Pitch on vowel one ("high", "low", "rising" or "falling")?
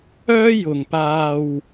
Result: high